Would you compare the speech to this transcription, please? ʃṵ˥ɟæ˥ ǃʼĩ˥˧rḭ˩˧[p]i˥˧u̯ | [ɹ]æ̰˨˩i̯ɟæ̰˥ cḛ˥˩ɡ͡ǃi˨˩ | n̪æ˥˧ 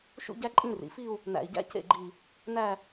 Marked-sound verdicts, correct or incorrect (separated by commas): incorrect, incorrect